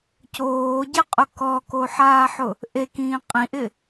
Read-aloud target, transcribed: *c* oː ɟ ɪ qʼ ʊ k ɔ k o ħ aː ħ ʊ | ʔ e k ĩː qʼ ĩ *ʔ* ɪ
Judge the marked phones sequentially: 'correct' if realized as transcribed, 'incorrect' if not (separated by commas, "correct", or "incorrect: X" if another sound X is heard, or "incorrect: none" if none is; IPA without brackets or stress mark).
correct, correct